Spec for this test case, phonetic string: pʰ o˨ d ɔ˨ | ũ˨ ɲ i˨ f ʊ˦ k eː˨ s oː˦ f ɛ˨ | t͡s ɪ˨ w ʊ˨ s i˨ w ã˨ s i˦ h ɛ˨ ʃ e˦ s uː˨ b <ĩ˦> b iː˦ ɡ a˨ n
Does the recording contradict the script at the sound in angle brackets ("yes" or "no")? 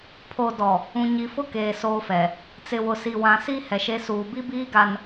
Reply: yes